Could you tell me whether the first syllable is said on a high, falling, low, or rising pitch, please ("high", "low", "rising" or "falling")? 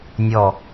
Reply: falling